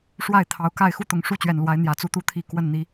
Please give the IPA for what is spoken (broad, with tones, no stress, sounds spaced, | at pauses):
ʂ w a˥˨ ɪ̯ t̪ʰ ɑ˨˩ ʊ̯ k a˥˨ ɪ̯ x u˦ t̪ ʊ˨˩ ŋ ʂ u˥˨ t͡ɕ ɥ ɛ˨˩ n l w a˨˦ ɪ̯ n̪ j ä˨˩ t͡s u˥˨ t̪ u˥˨ t̪ʰ i˦ k w ə˥˨ n n̪ i˨˦